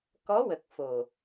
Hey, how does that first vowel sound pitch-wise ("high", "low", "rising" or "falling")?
rising